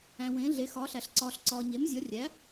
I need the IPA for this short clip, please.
æ̃˨ w ẽː˩˥ ɮ e˩˥ x ɒː˩˥ ɬ æ˨ ɬ ǀ ɒː˨ ɬ ǀ ɒː˨ ɲ e˩˥ m zʲ ɒ˩˥ rʲ æ˩˥

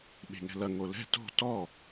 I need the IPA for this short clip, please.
ɓ e̤ ŋ ɛ̤ l ɐ ŋ o l ɛ̤ t o̤ t ɔ

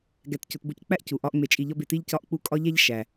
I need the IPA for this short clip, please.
ɡ æ˧ t c o˧ t b o˥ c k͡p æ˥ ʔ c u˩ ʔ ɒ˥ ʔ ŋ͡m e˧ t͡ʃʼ i˧ ʎ ɒ˥ b e˧ t i˥ ʎ c ɒ˥ ʔ k͡p u˥ kʼ ɒ˥ ʎ æ˥ ʎ ʃ æ˩

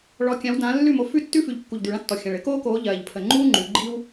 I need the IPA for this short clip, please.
ɭ ɔ˨˦ kʲ ã˨˦ w d ãː˨˦ lː ʉ˥˨ m o˨˦ f ʉ˥˨ tː ʉ˥ f ʉ˨˩ ʎ kː u˨˩ ʎ d̪ ʉ˨˩ ɭ ã˥ tː ɔ˨˩ xʲ ã˨˩ ɭ ɘ˥ k oː˥ k oː˨˦ ʎ ɜː˨˩ ʎ pʰ ə˨˩ ŋ͡ǃ uː˥ ŋ͡ǃ ʉ˨˦ ɡ͡ǃ i˥ w

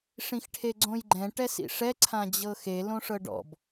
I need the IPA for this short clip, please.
ʂ ĩ x ʈʰ e ɡ͡ǀ õ j ɡ͡ǃ ɛ̃ ʈ ɛ s ḭ ʂ ɛ ǀʰ ã d͡ʑ ɤ x e l õ ʂ ɤ ɖ ɔ̰ b

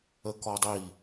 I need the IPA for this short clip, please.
ə k ɔ dˤ i

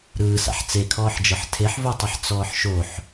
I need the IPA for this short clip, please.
ɾ ɯː s a̰ ħ t͡s e kʰ ɔː ħ d͡ʒ ɤ ħ tʰ e ħ v o tˤ ɯ ħ t͡s ɔː ħ ʃ o ħ

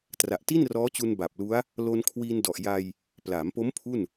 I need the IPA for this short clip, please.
t r a˨˩ ʔ t i˥˩ n r ɔː˦˥ t͡ɕ u˧ n b a˨˩ p̚ l u˦˥ a̯ | l o˧ n kʰ w iː˧ n d ɔ˨˩ ʔ j a˧ j | p l aː˩˦ m p o˦˥ m pʰ u˥˩ n

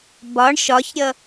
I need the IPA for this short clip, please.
b ɒ ɳ ʃ ɒ ç ɾʲ ʌ

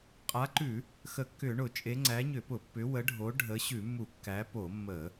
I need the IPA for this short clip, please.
qʼ a˨˦ ǃ ʉ˧˩˧ | x ə˧˩˧ kː ʏ˧˩˧ ɳ ʊ˧˩˧ t͡ʃʼ e˨˦ ŋ͡ǀ æ˨˦ ɲ ʏ˧˩˧ p ʊ˧˩˧ pː ʏ˨˦ w ə˨˦ ɖʱ o˨˦ ɖʱ ə˨˦ ɕ ʉ˧˩˧ mː u˧˩˧ kː æ˨˦ p o˧˩˧ mː ə˧˩˧

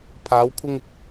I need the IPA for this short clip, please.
pʰ aː˨˧ w kʷʰ ɪ˧ ŋ ɪ˨ k̚

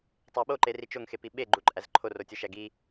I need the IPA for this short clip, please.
tˤ æ ɓ o ǃ e r i t͡ʃ o ŋ x e p i ɓ e ɡ͡ǃ u ǃʼ æ z ǃʰ o r o tʲ o ʃ æ ɡ i

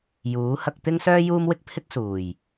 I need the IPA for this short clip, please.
j uː˨˥ h ɐ˧ k̚ t̪ ɪ˥ ŋ s œː˥ j uː˥ m w ɪ˥ k̚ pʰ ɪ˥ k̚ s uː˨˩ j

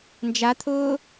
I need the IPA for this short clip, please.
n d͡ʒ a t̪ʰ ʊː

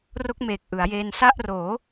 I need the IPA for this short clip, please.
r o˦˥ k̚ m eː˨˩ k̚ ʔ ɯ˩˦ a̯ j eː˧ n s a˥˩ ʔ r oː˩˦

